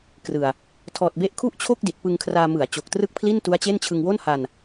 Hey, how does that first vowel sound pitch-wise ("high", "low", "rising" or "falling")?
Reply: low